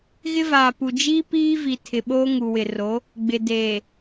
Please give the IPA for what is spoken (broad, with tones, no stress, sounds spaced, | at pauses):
ɣ ɪ˦ v aː˨ p u˨ d͡ʒ iː˦ p iː˦ v i˨ tʰ ɪ˨ ɓ oː˦ ŋ u˨ w ɪ˨ r o˨˦ | ɡ͡b ɪ˨ d eː˨